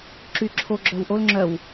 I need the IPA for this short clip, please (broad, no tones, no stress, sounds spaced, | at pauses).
ǁ y ǁʰ o ɡ͡ǁ œ w ʔ o l ŋ͡ǁ œ w